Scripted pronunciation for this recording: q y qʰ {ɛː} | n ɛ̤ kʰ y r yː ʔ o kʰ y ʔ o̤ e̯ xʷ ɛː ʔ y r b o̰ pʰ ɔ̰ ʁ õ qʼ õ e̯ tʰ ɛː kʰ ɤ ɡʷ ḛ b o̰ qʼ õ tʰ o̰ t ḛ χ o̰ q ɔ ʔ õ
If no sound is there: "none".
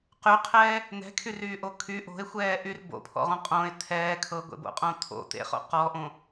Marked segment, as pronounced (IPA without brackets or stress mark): ɛː